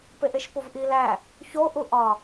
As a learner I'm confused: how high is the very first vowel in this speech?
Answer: mid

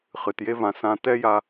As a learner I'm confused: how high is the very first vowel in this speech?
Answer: high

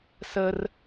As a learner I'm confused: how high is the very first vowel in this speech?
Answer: mid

